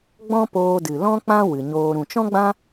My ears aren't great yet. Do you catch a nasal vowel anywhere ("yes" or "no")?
yes